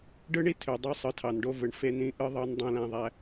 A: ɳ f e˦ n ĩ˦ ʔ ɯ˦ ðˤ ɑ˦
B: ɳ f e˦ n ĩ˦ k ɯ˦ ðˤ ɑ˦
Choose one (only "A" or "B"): A